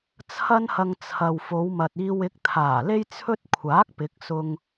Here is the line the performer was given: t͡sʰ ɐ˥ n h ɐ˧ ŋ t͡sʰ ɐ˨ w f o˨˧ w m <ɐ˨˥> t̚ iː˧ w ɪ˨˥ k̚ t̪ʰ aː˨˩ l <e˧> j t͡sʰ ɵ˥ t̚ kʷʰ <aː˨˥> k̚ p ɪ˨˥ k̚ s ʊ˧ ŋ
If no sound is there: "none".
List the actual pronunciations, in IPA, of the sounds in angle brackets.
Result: ɐ˨, e˥, aː˨˥

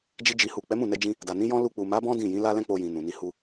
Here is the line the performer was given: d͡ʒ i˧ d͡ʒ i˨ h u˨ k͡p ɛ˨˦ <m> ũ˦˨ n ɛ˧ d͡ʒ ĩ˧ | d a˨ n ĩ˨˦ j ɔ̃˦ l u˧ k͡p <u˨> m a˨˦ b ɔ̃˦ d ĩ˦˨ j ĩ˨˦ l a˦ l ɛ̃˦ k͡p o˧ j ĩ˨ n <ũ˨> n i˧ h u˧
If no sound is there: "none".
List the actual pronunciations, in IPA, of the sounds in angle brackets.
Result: m, u˨, ũ˨

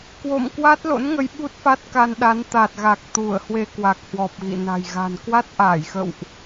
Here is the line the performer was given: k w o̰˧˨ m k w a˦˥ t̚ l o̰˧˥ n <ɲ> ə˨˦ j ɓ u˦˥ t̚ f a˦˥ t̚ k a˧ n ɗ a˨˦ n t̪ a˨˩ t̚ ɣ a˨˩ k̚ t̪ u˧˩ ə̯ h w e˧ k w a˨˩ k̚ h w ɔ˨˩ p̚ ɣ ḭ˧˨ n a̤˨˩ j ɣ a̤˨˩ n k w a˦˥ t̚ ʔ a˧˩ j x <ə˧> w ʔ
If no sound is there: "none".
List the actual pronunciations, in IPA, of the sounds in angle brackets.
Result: ŋ, ə̰˧˨

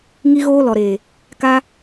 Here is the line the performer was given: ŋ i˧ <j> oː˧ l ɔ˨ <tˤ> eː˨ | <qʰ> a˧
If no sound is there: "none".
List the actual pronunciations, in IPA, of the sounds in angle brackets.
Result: ɣ, ɾ, k

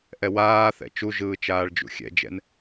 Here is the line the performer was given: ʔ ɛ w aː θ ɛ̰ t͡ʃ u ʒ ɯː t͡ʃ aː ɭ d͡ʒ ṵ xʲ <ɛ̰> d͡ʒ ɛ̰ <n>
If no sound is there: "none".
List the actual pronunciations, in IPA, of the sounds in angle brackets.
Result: ɛ̰, n

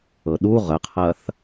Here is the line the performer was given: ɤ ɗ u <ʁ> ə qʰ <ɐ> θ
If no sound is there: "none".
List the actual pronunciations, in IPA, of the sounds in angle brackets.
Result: ʁ, ɐ

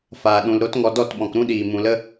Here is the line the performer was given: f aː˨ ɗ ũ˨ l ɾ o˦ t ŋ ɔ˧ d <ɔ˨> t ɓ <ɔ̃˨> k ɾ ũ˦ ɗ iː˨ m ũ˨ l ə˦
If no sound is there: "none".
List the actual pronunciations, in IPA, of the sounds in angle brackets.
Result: ɔ˦˨, ɔ̃˨

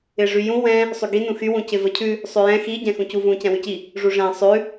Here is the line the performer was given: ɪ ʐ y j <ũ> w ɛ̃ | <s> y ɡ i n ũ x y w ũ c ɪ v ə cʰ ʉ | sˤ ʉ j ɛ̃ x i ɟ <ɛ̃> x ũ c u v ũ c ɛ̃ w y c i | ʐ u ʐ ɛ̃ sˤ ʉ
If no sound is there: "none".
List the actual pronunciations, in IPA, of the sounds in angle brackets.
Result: ũ, sˤ, ɛ̃

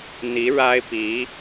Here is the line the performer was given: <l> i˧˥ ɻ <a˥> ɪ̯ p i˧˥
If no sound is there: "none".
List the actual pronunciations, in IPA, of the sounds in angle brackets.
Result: n̪, a˥

